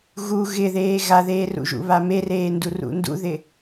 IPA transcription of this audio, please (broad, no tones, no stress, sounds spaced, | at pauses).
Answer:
ɣ u ɣ ɪ ð eː ɣ a ð eː r ṵ ʒ ṵ β a m e r eː n d u r ṵ n d ṵ ð ɪ